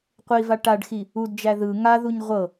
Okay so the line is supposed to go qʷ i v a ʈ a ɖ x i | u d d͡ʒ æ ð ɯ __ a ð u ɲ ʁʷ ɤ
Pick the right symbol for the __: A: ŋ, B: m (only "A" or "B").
A